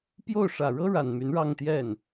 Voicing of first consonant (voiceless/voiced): voiceless